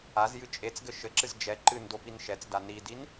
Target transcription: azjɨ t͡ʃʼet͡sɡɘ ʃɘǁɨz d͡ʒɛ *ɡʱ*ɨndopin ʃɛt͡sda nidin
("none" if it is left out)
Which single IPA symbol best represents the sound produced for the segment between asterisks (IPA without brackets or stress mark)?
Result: ǃ